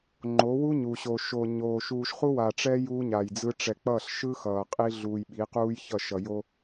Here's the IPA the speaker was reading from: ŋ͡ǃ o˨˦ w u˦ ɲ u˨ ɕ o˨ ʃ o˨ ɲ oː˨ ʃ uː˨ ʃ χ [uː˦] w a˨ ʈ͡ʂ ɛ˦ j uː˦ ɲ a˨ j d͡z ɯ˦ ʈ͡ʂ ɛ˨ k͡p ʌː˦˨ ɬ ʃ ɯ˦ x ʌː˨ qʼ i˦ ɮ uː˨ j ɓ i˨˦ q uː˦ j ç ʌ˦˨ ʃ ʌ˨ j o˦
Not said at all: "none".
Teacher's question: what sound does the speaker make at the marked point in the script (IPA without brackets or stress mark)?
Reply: u˦